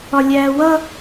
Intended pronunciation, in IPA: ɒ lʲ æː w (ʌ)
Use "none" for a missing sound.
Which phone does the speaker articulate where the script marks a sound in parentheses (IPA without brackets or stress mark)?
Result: ʌ